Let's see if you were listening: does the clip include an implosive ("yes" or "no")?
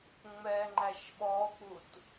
yes